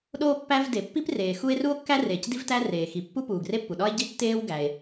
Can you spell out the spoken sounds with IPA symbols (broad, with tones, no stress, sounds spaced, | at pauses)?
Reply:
ɗ oː˥ pː æ˥ v d e˩ pː i˥ p r eː˩ x u˥ e̯ r u˥ o̯ kː æ˥ r eː˩ c d i˥ v t æ˥ r eː˩ x i˩ pː u˥ p uː˩ ɡ r e˥ pː u˩ ɗ ɒ˥ e̯ ɟ i˥ tː eː˥ w ɡ æ˩ e̯